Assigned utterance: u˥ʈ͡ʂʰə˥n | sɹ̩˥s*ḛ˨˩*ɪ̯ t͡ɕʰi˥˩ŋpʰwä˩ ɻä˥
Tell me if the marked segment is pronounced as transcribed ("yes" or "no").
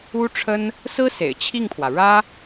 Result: yes